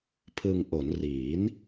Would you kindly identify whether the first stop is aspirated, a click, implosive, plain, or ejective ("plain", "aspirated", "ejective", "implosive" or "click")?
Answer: aspirated